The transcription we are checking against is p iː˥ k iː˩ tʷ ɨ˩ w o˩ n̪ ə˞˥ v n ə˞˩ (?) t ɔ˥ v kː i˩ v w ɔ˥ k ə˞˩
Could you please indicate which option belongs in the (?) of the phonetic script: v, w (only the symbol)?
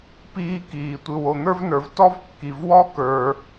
v